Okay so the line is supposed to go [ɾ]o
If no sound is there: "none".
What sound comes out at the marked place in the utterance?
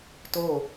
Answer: t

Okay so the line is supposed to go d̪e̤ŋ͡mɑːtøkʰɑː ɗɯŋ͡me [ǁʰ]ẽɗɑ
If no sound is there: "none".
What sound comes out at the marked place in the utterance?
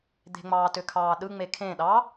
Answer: kʰ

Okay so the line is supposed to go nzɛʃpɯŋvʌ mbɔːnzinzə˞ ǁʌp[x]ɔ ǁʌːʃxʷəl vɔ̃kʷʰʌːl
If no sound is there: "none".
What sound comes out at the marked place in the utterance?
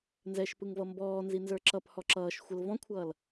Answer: h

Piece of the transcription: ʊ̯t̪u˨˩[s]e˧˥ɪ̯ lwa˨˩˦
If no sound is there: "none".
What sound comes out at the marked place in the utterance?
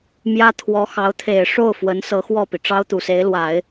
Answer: s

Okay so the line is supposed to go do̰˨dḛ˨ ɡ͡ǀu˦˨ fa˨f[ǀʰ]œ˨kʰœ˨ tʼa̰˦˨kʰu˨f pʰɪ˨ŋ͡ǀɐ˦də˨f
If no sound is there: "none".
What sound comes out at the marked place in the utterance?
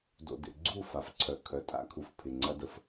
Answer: ǀʰ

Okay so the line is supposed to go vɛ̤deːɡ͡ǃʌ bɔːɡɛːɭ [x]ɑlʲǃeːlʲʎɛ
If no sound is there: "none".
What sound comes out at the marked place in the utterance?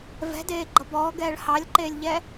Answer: h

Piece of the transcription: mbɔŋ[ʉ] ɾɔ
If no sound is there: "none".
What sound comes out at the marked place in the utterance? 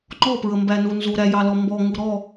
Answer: u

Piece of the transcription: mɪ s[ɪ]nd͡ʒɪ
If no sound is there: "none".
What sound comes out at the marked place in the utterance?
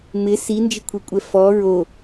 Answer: i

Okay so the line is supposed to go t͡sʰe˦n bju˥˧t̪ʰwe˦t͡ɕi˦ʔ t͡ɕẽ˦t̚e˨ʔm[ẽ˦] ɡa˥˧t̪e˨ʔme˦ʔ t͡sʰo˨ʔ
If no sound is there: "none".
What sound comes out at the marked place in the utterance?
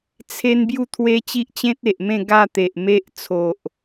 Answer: ẽ˥˧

